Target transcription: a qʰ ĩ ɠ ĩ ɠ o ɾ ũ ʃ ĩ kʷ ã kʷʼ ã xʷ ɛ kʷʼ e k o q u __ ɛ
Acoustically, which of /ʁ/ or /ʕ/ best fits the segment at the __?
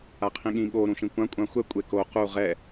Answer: ʁ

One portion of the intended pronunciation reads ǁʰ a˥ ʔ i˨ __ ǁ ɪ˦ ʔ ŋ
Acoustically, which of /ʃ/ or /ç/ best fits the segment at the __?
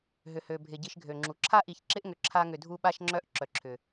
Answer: ç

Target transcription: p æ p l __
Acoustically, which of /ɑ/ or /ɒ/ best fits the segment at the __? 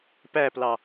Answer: ɑ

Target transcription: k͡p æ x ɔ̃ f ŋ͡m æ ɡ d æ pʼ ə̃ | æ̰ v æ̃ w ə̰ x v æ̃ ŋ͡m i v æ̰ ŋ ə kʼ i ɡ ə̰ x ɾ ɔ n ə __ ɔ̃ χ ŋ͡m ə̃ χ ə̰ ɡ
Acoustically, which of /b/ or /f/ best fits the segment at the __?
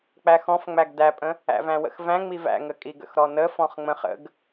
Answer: f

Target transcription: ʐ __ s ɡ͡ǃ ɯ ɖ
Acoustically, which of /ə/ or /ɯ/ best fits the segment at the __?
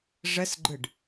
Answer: ə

